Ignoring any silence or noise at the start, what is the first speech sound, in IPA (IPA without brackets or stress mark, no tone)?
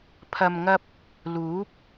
pʰ